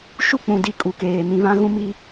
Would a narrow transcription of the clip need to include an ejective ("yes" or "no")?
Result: yes